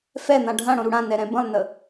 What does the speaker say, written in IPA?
f ɛ n̪ ã ɖʱ ã ɽ õ ɾ u ɽ ã n ɛ ɾ ɛ̃ b ə̃ lˠ n ə

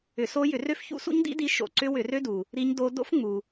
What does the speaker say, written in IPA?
ʏ˧˩˧ s o˦˥ j ʏ˧˩˧ r ø˦˥ f ç ṵ˦˥ s ṵ˦˥ ɲ d ḭ˦˥ d i˦˥ ʃ o̰˧˩˧ ǀ ʏ˦˥ w ʏ˧˩˧ r ø˦˥ d u˩ | ɾ i˦˥ ɲ d o˦˥ d o̰˦˥ f ŋ͡m u˩

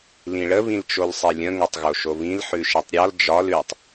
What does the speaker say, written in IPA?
l ĩ ɭ ə β ĩ l t͡ʃ o l sˤ i lʲ ə̃ ŋ o tˤ ɣ o ʃ o β ĩ l ħ ʉ ʃ i tˤ ɾʲ ɒ l d͡ʒ ɒ l ʉ tˤ

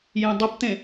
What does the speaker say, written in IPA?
j ẽ dˤ ʌ p t̪ ẽ

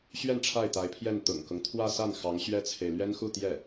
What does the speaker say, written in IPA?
ɕ ɥ ɛ˥˧ n ʈ͡ʂʰ a˥˩ ɪ̯ t̪ a˧˥ ɪ̯ pʰ j ɛ˥˩ n t̪ ʊ̰˨˩ ŋ k ʊ˦ ŋ t̪ʰ w ä˥˧ s a˥˩ n x ɑ˧˥ ŋ ɕ ɥ ɛ˥ t͡sʰ e˨ ɪ̯ l ɥ ɛ˥ n x u˥˧ t̪ j ɛ˥˩

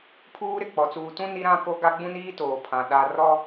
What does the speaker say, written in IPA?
pʰ uː˦ ɾ ɪ˨ k͡p ɔ˨ t͡s uː˨ t ũ˦ n i˦ ɾ ã˦ k o˦ ɡ a˦ ɡ͡b ũ˦ n iː˦ t oː˨ pʰ ã˨ ɗ a˦ r ɔ˦

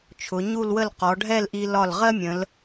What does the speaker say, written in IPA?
t͡ʃʰ ʊ˩˧ ɲ u˥˧ l w ə˥˧ l q ɔ˩˧ ɖʱ ɛ˥˧ l ʔ i˧ l ɒ˧˩ l ʁ ɜ˥ mʲ ə̃˩˧ l

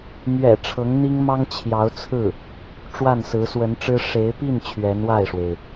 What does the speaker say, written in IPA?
m ɥ ɛ̰˨˩ ʈ͡ʂʰ ɤ˧˥ ŋ n̪ i˥ ŋ m ɑ˥ ŋ t͡ɕʰ j ɑ˧˥ ʊ̯ t͡sʰ ɹ̩˥˩ | ʈ͡ʂ w a˥˩ n s ɹ̩˧˥ s w ə˧˥ n ʈ͡ʂ ɻ̩˥ ʂ e˧˥ ɪ̯ p i˥˩ n t͡ɕʰ ɥ ɛ˧˥ n w a˥˩ ɪ̯ ʂ w e˩ ɪ̯

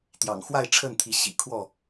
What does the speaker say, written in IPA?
t̪ j ɑ̰˨˩ ŋ x w a˥˨ ɪ̯ ʈ͡ʂʰ ə˥˨ n t̪ʰ i˨˦ ɕ ḭ˨˩ kʰ w ɔ˥˨

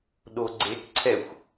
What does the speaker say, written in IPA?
ɗ o ɡ͡ǀ e k ǀʰ ɛ xʷ

